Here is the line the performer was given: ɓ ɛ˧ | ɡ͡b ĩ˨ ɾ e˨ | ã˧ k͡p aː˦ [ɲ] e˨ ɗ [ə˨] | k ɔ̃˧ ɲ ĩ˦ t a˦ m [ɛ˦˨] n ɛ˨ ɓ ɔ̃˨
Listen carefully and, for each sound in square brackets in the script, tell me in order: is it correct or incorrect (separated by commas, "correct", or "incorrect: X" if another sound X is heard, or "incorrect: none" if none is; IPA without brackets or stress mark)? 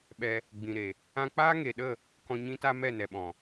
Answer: incorrect: ŋ, incorrect: ə˦˨, correct